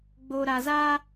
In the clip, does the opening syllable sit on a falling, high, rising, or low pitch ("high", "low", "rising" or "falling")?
low